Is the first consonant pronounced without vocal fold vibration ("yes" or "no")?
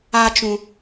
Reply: yes